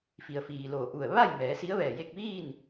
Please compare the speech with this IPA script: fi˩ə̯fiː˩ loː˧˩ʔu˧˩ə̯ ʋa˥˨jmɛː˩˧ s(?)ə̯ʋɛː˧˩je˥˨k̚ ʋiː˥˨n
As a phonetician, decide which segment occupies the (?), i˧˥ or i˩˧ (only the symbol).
i˧˥